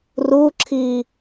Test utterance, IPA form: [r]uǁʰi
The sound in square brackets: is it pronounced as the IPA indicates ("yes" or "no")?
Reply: yes